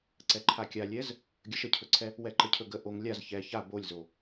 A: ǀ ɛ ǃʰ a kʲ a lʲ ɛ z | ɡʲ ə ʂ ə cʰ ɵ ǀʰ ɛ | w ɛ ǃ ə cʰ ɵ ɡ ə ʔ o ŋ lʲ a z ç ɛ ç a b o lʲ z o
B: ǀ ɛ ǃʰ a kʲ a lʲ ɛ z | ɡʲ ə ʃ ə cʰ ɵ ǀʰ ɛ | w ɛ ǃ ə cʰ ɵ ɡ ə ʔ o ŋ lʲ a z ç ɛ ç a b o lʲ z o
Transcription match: B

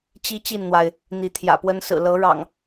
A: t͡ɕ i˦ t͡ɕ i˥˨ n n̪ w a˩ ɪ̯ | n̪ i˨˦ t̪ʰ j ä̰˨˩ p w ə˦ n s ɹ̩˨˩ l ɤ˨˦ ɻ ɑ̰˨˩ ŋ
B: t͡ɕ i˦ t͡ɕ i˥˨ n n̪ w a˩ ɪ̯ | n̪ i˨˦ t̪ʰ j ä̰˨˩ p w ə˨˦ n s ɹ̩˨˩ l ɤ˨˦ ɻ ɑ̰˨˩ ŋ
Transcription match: A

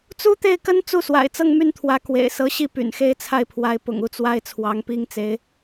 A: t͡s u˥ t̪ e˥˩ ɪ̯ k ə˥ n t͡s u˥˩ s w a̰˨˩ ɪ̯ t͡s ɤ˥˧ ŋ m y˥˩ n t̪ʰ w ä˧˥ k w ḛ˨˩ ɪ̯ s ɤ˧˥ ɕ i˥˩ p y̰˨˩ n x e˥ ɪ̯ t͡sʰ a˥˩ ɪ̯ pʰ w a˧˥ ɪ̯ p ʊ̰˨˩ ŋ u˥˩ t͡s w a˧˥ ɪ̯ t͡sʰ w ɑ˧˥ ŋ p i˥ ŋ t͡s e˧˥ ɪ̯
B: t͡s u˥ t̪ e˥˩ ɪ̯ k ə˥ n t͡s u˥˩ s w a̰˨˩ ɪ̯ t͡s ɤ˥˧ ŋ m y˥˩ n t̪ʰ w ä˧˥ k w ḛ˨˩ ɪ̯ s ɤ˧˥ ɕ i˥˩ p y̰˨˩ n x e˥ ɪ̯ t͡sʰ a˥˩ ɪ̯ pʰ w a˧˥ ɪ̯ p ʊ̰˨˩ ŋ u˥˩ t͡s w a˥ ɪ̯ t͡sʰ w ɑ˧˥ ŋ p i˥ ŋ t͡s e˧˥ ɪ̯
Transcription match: B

